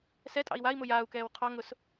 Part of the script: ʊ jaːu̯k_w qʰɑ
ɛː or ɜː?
ɛː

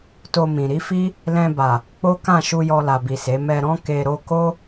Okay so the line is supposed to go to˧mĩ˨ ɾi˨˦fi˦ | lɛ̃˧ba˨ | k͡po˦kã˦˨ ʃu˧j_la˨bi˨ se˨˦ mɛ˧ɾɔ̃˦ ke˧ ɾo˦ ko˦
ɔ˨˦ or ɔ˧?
ɔ˧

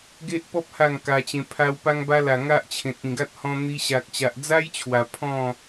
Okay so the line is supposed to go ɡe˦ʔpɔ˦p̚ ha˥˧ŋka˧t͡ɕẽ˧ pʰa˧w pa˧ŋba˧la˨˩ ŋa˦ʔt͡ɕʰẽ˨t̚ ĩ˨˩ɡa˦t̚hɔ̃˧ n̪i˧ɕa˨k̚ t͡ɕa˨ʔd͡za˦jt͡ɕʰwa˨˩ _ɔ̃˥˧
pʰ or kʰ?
pʰ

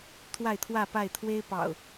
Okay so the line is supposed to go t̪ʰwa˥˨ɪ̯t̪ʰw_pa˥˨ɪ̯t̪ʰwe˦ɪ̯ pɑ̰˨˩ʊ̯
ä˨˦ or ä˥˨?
ä˥˨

